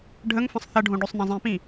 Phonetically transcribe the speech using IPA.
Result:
ɖʱəŋfə̃sˤ θɐɖʱõ ɖøsˤnɐ̃zˤĩpĩ

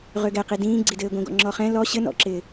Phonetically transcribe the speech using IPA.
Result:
ʁøɡɛqi dĩːɡ͡ǀidɘː ɡʷĩɡɔ̰ŋ͡ǁɔχɛ̃ lɔ ɕɘ nɔ̰ǁɪː

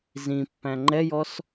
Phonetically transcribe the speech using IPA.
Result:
zĩpːæ̃ ŋ͡ǃɛjɔs

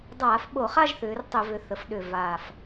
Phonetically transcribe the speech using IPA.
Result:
dˤaː˧˩˧fɓo˧˩˧χa˥˧ʒθʏː˩˧r tˤʏ˧˩˧vʏ˩˧ θə˩˧fɗʏ˨˩ vaː˨˩f

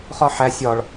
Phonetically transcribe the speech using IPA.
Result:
χɒħæ sʲɒɭ

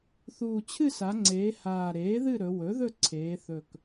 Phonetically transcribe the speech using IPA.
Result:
θuː˨˩t͡ɕʰɨ˦˨sa˩˧ŋ͡ǀeː˩˧ haː˨˩ɾeː˩˥ðɨ˦˨ ɾɵ˩˧ wɵ˩˥ðɵ˦˨ ǀʰeː˩˧θɵ˨˩k

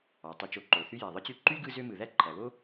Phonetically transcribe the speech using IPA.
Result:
ɑ˩ tˤi˨t͡ʃo˨ǃo˩θy˦ jæ˩ðˤɯ˦t͡ɕy˦ ǃy˥ɡɯ˦zø˦ mɯ˩ðæ˦ǃʰæ˩βo˦

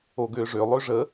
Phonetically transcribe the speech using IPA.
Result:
oɡʏːʐø lˠøʐə

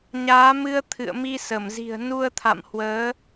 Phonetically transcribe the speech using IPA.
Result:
ɲaː˨˦mɨ˧ə̯ t̪ʰɨ̰˧˨ə̯mi˧sə˧˩mzi̤˨˩ə̯ nu˧ə̯t̪ʰa̰˧˨m hwəː˨˦

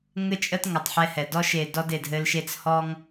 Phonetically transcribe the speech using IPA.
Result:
ŋɘ˦t͡ʃʼə˦t ŋə˨˩tˤħɛ˦hɛ˨˩ dɔ˦ʃe˨˩ dɔ˦de˨˩dɦɘ˦lʃe˦t͡s hɔ˦ŋ

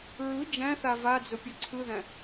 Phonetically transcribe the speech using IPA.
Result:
ɹɯ d͡ʒæ̃θa vad͡zʊpʲʊ ǀʰɯðæ̃

